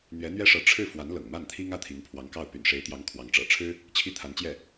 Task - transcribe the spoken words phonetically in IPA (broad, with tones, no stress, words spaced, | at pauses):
n̪ɥɛ˧˥n̪ɥɛ˥ʂɤ˧˥ ʈ͡ʂʰɻ̩˥˩ fwa˧˥nlɤ̰˨˩ŋma˥˩nt̪ʰi˥ŋ ä˥˩t̪ʰi˧˥ŋpʰwɑ˧˥ŋkɑ˥˩ʊ̯ py̰˨˩nʂe˧˥ɪ̯t̪jɑ˧˥ŋ kʰwɑ˧˥ŋ ʈ͡ʂɤ̰˨˩ʈ͡ʂʰɻ̩˥ | t͡ɕʰi˥t̪ʰa˧˥nt͡ɕjɛ˥˩